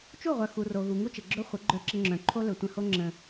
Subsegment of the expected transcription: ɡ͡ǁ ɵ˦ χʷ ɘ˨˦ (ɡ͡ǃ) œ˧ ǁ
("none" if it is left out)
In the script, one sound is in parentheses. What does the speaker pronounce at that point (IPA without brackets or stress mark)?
ɡ͡ǃ